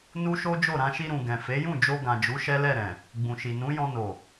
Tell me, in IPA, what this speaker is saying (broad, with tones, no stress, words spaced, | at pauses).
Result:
nu˦ʃo˦d͡ʒo˦˨ ɾã˧ʃi˧ɾũ˨ ɡɛ̃˨fe˨˦jũ˦˨d͡ʒo˧ ɡã˨d͡ʒu˨˦ ʃɛ˦lɛ˦˨ɾɛ̃˨ | ɡ͡bũ˨ʃi˨nũ˨˦jɔ̃˧ no˨